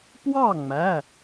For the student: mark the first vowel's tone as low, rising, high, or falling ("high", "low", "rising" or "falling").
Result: falling